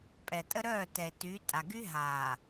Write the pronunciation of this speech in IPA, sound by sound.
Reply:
pʼ ɛ˨ tʼ ə˦ ɾ œː˦˨ t ɛ˨ e̯ t y˨˦ tʼ a˨ ɡ y˦ ɦ aː˨

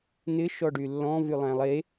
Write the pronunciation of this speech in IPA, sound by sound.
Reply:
n̪ ɪ ʃ ɔ ɖ y lː ɔ̃ v y lˠ æ̃ lˠ e

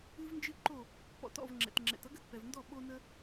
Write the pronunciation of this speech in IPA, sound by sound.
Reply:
ɨ˥ v n d͡ʒ ɨ˥ ǃ o˥˩ | p ɔ̰˧ t ɔ̰˥˩ v ŋ͡ǁ ɛ̰˩ t ŋ͡ǁ ɛ̰˩ t ʌ˥ ɡ ə˩ t p ɛ˩ v n d ɔ˥˩ ɓ o˧ n ə˧

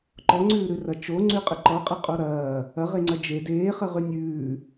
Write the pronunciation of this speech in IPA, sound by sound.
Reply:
ǃ ɔ ŋ͡ǀ ʉː ɾ ʉ r ɐ t͡ʃ o ŋ͡ǀ ʉ qʼ ə ǃ ɔ qʼ ə qʼ o ɾ ɐː | ɐ ʁ e ŋ͡ǀ ɐ d͡ʒ e d eː χ ə ʁ ʉ nʲ ʉː

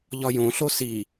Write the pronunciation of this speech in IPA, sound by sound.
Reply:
ʎ ɒ j õ ɬ o s i

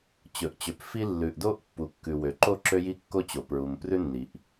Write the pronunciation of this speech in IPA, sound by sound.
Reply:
t͡ɕ ɵ˩ ʔ t͡ɕ ø˩ p f i˥ lː ʉ˩ ʔ d o˥ ʔ pː u˩ kː ʉ˩ w ø˩ ǃ o˥ ǁ ø˥ j i˥ kː o˥ t͡ɕ o˩ p ɹ u˩ m p r ʉ˥ nː i˩ ʔ

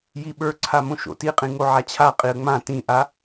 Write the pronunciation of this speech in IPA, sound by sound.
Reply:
j i ɓ ə˞ ǀʰ a m õ ʃ o̰ t i qʼ ĩ ŋ o ʕ a t͡ɕʰ a qʼ i ə̯ ŋ͡m ã t ĩ ʔ a

